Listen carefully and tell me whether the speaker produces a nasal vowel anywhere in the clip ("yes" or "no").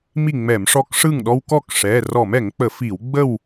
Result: no